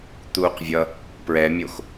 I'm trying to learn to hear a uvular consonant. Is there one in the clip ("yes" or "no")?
yes